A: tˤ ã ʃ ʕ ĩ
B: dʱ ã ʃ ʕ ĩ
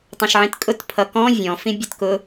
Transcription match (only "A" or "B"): A